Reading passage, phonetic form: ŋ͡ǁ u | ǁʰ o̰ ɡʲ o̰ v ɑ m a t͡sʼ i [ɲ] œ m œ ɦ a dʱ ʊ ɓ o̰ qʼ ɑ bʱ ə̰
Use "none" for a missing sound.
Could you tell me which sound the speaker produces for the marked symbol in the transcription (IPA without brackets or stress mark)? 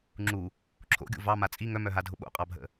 ŋ